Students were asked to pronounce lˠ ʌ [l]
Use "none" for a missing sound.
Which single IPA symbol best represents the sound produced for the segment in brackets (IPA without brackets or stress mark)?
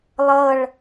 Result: ɭ